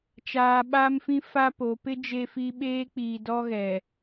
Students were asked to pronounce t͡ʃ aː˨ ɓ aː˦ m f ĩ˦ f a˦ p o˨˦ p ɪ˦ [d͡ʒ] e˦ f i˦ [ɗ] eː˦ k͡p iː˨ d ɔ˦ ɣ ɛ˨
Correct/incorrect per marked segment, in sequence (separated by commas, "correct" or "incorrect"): correct, incorrect